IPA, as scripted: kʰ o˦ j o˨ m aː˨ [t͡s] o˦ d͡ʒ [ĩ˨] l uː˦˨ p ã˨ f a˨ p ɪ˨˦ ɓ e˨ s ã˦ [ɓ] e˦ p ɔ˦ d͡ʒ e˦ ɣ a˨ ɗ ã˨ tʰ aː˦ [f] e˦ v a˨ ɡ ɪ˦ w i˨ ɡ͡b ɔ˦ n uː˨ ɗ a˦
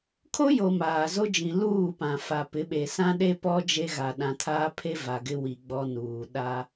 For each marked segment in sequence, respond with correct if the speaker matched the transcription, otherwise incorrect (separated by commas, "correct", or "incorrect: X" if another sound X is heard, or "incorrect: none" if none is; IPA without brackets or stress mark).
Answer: incorrect: z, correct, incorrect: ɗ, incorrect: pʰ